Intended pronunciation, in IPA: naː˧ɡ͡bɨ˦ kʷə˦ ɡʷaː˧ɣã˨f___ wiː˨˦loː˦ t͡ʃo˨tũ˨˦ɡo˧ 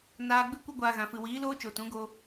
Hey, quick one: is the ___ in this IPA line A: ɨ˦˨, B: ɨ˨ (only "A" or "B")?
B